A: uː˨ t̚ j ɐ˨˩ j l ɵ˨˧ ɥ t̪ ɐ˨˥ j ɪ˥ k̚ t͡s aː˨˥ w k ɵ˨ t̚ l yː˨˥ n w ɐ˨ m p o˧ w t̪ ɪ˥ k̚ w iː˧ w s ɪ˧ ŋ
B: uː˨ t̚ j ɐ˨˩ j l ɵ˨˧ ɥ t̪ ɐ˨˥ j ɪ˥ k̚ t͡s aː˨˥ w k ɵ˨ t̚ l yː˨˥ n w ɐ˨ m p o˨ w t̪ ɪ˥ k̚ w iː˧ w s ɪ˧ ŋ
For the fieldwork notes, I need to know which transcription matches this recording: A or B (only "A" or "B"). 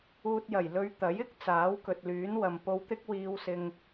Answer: A